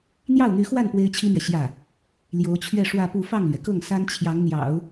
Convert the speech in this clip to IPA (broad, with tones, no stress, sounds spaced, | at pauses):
n̪ j ɑ˥˩ ʊ̯ n̪ y˧˥ x w a˥˩ n p w e˥ ɪ̯ t͡ɕʰ i˥ m ɥ ɛ˨ ɕ j ä˥˩ | l j o˧˥ ʊ̯ t͡ɕʰ ɥ ɛ˥˧ ʂ w ä˥˧ p u˥˧ f ɑ˥˩ ŋ l ɥ ɛ˩ k ɤ˥˩ ŋ s a˥ n t͡ɕʰ j ɑ˧˥ ŋ n̪ j ɑ̰˨˩˦ ʊ̯